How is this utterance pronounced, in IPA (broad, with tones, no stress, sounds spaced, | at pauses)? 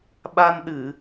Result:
ɓ a˧ n ɗ ɨ˧˩˨